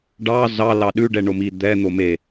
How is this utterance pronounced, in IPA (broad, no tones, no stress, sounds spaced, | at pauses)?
ɖ ɑ z ɑ l ɑ ɗ ʉ ɖ ɛ ɳ o m i d̪ ɛ n̪ o m e